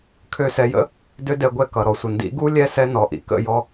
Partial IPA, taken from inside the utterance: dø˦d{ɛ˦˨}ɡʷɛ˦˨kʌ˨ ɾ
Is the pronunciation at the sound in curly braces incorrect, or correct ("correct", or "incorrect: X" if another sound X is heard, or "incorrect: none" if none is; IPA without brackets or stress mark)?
incorrect: ɛ˧